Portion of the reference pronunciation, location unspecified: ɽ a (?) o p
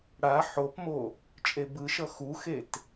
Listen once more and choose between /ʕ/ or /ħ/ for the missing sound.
ħ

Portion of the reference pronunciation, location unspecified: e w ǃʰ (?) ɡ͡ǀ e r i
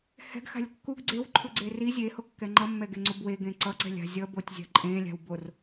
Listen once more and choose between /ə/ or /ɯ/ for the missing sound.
ɯ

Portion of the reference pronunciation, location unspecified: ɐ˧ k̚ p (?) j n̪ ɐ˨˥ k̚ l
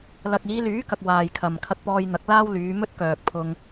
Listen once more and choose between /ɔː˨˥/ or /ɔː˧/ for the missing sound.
ɔː˧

